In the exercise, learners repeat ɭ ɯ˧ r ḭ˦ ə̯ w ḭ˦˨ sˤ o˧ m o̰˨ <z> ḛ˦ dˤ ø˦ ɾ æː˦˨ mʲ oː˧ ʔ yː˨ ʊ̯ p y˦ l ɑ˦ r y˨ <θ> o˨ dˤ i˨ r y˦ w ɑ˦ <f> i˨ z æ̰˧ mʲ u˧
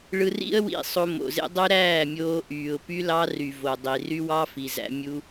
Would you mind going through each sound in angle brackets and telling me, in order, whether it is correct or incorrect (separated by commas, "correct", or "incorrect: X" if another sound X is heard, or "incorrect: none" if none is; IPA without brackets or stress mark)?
correct, incorrect: v, correct